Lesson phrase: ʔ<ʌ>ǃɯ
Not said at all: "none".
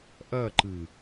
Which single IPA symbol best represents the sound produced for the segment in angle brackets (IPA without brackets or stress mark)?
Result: ʌ